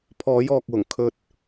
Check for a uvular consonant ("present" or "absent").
absent